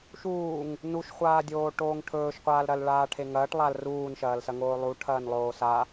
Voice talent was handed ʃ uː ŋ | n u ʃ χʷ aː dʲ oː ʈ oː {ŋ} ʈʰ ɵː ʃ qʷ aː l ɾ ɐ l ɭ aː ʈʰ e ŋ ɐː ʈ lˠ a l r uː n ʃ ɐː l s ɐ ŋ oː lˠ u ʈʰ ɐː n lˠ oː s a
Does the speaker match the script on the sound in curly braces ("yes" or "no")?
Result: yes